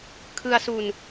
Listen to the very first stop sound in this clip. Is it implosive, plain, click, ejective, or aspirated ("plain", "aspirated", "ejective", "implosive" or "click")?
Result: aspirated